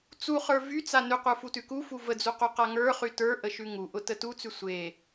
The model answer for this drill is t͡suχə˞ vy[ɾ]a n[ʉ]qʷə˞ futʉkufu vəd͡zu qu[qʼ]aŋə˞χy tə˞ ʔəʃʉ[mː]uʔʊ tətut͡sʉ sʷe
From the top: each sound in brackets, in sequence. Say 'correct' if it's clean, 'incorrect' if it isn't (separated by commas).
incorrect, correct, incorrect, incorrect